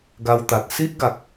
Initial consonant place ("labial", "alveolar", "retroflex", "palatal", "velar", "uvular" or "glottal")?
velar